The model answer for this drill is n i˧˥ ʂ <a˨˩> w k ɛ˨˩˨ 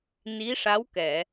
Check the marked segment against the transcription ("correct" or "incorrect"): incorrect